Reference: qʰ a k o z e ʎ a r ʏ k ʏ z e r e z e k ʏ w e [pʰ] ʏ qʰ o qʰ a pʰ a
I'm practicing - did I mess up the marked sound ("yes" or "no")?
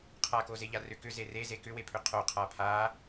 no